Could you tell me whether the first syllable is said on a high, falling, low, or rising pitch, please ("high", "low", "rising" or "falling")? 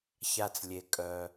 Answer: low